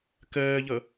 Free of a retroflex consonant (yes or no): yes